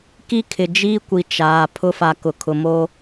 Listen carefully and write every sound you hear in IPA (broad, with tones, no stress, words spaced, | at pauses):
ki˦kʰɪ˨d͡ʒiː˦kʷi˨ t͡ʃaː˨ pʰʊ˦fa˨ kʊ˨kʰʊ˨mo˦